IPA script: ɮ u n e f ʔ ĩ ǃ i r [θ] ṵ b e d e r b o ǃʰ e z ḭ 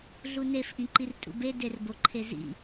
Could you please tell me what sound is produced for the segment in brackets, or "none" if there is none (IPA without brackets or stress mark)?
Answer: tʼ